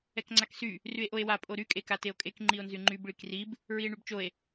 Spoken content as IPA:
ɛ k ŋ͡ǀ a k s y | r y e̯ ʔ o e̯ w a pʼ o ɾ y kʼ e k a t e o̯ kʼ e k ŋ͡ǃ i o̯ n z y ŋ͡ǃ y b ɭ i k r i b | ɹ i e̯ ɳ y b t͡ʃ o e̯

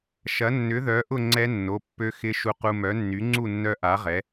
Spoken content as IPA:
ʃ ɐ˨˥ nː ʏ˨˥ ð œ˨˥ ʔ ʊ˥˧ ŋ͡ǀ ɛ˦˥ nː o˩˧˩ pː ø˦˥ x ɪ˦˥ ʃ u˧ q u˧ m œ˨˥ nː y˨˥ ŋ͡ǀ u˥˧ nː œ˦˥ ʔ a˨˥ ʁ ɛ˨˥

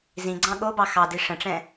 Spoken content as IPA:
z ĩ ɡ͡ǀ ɑ̃ ɠ o b ɑ x ɑ d i ʂ ə̃ ʈ͡ʂ ɛ̃

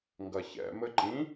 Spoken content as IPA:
ŋ ɡ ɐ ç ɛ̰ m ɘ ǃ ĩ

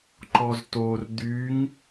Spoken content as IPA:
ǃ ɔ z t o r d̪ y ŋ

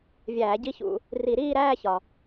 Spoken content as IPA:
vʲ æː˧˩˧ ɟ i˥˧ ç ṵ˧˩˧ | r i˧˩˧ ɾ iː˥˧ ɾ æː˥˧ ç ɒ˩

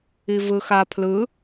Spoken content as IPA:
i v ɯ x a pʰ l ɯ

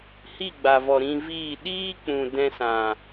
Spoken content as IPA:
h i˦˨ ɡ͡b a˨ v ɔ˨ ɾ ĩ˧ v iː˦˨ ɗ iː˦ k͡p ũ˨ d ɛ̃˧ s ã˨

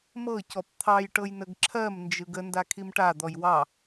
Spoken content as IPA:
m ɤ c ɔ p t̪ʰ ɑ j ʈ ɤ j n ə ɡ ǁʰ ɜ m n d͡ʒ ɯ ɡ ə n d a kʰ i m ʈ a d̪ ɔ j w ɑ

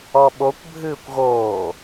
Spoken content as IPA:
ɔ ɓ o kʷ bʱ ɨː kʷ ɣ oː

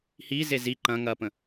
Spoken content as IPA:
h i z e z i ǃ ɐ̃ ŋ ɐ p ə̃

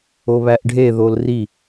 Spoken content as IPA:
o β æ ʔ ɖʱ e ð o l r i

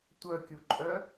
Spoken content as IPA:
tʷ œ kʲ u ǃʼ œ

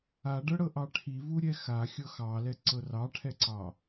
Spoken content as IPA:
a ɖ ɤ ɽ ɤ ʔ ɑ ʈʰ i v u ɾʲ ɛ x a xʲ ɤ x ɑ l ɛ ǀ ɤ r ɑ ʈʰ ɛ ǀ ɑ

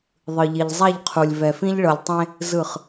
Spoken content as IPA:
ðˤ ɯ˨ ʎ i˨ ʎ zˤ a˦˨ ʎ qʰ u˨ lʲ v ɛ˨ f ĩ˦ ʎ ɭ ɤ˨ lʲ tˤ ẽ˦ | z ɯ˦˨ χ

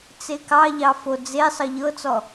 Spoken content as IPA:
t͡s e k ɑ ʎ ɑ f o d͡z e sˤ ɤ ʎ ɤ t͡s ɔ

